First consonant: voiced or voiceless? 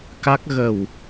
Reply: voiceless